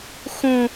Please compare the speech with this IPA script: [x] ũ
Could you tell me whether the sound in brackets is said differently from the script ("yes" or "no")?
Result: no